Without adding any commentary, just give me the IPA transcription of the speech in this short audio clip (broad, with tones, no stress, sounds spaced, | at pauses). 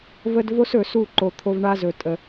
v ə˧ d v o˦ s ɵ˨ s u˦˨ ǃ o˨ t̪ʰ o˧ v ɳ a˦ z ɵ˨ tʼ ə˨